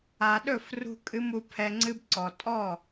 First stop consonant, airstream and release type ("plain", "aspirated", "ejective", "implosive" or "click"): implosive